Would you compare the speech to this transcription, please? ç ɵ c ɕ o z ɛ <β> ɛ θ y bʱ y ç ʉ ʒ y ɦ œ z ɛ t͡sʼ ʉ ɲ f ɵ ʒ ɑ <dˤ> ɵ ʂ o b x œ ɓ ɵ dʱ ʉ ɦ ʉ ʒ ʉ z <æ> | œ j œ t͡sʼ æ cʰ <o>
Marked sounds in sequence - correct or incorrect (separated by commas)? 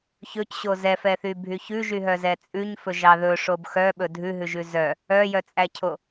incorrect, incorrect, incorrect, correct